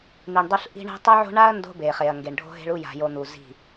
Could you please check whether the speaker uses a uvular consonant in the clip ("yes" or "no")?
yes